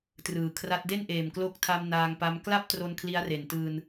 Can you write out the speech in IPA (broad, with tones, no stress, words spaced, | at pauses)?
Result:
trɯː˨˩kʰra˦˥t̚ de˥˩nʔeː˨˩m klo˦˥k̚tʰa˧m naː˧ŋpa˦˥m kla˥˩p̚tro˧n kʰli˦˥a̯re˨˩ntɯː˧n